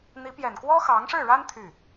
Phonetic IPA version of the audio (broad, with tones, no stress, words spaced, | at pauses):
n̪i˧˥ pjɛ˨˩nkwɔ˥ xɑ˧˥ŋʂɻ̩˥˩ɻa˥n t̪ʰy˥˩